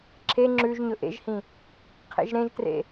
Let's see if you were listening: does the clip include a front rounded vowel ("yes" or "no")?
no